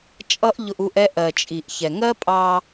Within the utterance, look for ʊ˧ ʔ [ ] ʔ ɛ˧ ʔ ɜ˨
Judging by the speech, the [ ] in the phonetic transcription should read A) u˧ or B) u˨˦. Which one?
A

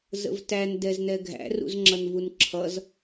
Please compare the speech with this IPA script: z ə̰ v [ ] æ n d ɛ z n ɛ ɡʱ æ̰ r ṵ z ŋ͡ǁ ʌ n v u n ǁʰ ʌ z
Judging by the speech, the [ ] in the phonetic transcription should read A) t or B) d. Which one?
A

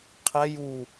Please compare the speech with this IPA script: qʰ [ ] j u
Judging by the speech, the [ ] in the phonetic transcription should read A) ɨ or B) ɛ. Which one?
B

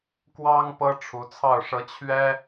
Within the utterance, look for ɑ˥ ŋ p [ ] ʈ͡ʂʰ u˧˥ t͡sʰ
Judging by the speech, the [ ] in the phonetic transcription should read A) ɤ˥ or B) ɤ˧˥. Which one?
A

